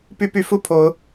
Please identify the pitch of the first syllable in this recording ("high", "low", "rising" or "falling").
high